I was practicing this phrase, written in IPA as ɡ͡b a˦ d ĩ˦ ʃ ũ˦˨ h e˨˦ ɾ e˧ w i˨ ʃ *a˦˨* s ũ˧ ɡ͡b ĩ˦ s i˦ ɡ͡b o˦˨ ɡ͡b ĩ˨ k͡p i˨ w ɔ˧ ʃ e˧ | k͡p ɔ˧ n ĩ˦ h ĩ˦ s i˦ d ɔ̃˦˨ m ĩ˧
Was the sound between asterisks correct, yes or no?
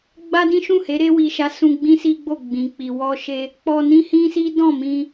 no